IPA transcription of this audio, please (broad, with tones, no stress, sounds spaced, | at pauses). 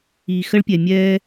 i˨ x ə˦ ɭ pʲ ɛ˨ mʲ ɛː˦